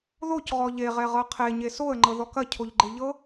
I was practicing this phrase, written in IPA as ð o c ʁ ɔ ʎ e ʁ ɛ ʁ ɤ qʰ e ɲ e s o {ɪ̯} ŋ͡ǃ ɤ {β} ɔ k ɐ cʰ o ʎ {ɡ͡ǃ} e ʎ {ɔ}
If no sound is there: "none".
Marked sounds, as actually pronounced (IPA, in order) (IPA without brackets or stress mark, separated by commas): ə̯, ð, ɡ͡ǃ, ɤ